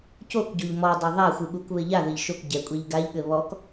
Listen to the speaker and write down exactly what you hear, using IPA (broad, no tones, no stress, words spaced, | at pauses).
cokɟoʎ mɔdˤa ðˤaxʷɨɠukβɘ ʎaðɘʎ ʃok ɟɛkʷʼeʎ ɡaʎɠɘ βɔk